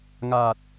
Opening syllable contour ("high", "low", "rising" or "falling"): low